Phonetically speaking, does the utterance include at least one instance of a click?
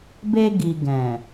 no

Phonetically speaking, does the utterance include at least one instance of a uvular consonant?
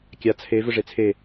no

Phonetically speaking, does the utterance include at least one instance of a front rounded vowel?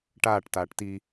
no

